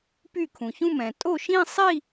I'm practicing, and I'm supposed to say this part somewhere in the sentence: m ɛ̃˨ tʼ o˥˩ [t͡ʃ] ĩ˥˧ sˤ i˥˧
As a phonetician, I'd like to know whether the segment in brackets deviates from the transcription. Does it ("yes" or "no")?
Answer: yes